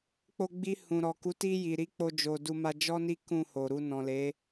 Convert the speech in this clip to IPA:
k͡p o˧ ɡ͡b i˧ h ũ˨ ɾ ɔ˨ k u˨˦ t i˧ j i˨ ɾ i˧ k͡p o˧ d͡ʒ o˨ d u˧ m a˧ d͡ʒ ɔ˦ n i˦ k ũ˦˨ h o˨ ɾ u˧ n ɔ̃˨ l e˨˦

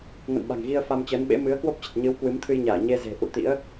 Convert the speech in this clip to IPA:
ŋ ə̰˧˨ n ɓ a̤˨˩ ŋ ɣ i˧ ə̯ f a˧ m t͡ɕ əː˨˦ n ɓ ḛ˧˥ m ɨ˨˦ ə̯ k w o˦˥ p̚ t͡ɕ ə˨˩ t̚ ɲ ɨ˨˦ w k w ɨ˨˦ m t̪ʰ ɨ˧ j ɲ aː˧˩ ɲ e˧ z e̤˨˩ ʔ ṵ˧˨ t̪ ḭ˧˥ ə̯

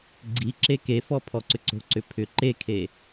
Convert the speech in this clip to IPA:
ɡ͡ǀ i ǁ e k e f ɔ pʰ ɔ ǀ ʏ ǀ o̤ ǀ ʏ pʰ ʏ ǃ e kʰ e

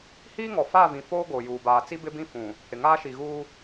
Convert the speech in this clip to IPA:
h iː˦ ŋ ɔ˨ f a˦˨ v ĩ˨ f oː˦ ɡ o˨ j uː˨ b aː˨ t͡s i˦ b ɪ˦ b ĩ˦ f ũ˨ | h ɪ˨ ŋ aː˦ ʃ i˨ ɣ uː˦

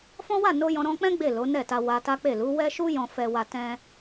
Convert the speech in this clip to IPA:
f ɔ̃˦ w a˦˨ n o˧ j ɔ̃˧ ɾ ɔ̃˧ k͡p ɛ̃˦ ɡ͡b e˦˨ l o˨˦ n ɛ˦˨ t a˧ w a˧ t a˦ k͡p e˦˨ l u˨˦ w ɛ˦ ʃ u˦ j ɔ̃˦ f ɛ˦ w a˦ t ɛ̃˦

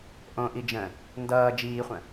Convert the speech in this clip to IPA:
ʔ õ ʔ i d͡ʒ ə̃ | n d ʌː d͡ʒ iː χʷ ə̃

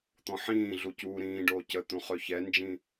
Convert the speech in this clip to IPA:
t̪ ɔ̃ ħ ĩː ɮ u c uː ɾ ĩː ɖ oː c ə t̪ ũ χ ø ç ɛ n d͡ʒ ĩ

